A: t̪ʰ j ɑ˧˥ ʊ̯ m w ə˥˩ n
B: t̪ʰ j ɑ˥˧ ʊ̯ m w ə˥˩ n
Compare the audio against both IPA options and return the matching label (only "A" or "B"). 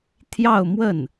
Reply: B